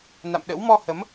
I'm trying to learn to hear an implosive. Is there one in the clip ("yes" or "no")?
yes